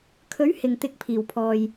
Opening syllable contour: rising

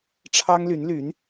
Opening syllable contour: high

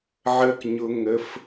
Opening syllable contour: low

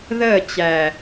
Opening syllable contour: falling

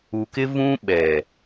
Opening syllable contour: low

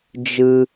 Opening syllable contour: high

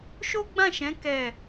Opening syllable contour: high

